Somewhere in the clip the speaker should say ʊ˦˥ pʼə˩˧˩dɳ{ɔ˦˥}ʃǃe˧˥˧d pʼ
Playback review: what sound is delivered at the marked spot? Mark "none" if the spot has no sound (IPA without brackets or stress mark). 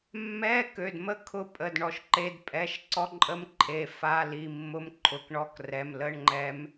ɔ˩˧˩